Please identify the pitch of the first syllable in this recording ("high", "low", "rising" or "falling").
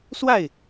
falling